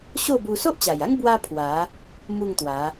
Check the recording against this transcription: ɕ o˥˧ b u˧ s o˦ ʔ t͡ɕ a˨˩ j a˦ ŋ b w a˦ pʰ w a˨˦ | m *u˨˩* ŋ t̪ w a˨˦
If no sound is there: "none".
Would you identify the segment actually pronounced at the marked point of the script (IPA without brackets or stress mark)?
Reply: u˥˧